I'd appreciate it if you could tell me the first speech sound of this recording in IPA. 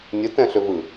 nʲ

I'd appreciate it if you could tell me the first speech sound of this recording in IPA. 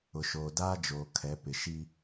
ʊ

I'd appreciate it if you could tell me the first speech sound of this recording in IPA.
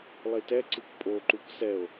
lˠ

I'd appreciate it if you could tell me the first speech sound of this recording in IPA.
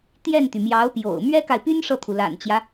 t̪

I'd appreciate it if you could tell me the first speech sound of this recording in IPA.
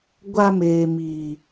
ɡʷ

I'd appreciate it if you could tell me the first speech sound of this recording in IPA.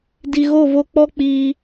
d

